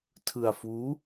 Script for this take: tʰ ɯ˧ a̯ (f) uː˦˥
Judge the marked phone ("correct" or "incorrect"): correct